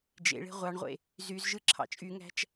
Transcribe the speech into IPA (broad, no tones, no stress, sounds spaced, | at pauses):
d͡ʒ ḛ ɭ e̤ ʁʷ ɑ ɳ ʁʷ ḛ | z y z ʒ ɯ ǁʰ ɑ̰ t͡ʃʼ y ŋ æ̤ t͡ʃ